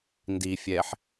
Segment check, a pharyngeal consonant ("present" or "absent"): present